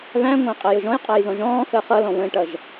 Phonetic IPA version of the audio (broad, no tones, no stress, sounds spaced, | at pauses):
β æ̃ ŋʷ ə̃ː qʼ ə j ʊ ʒ ɔ̃ j qʼ æ j ð ɔ̃ ʒ ɔ̃ː x ɜ χ ʌ l ɔ̃ β ə̃ː ʈ ʌ ʒ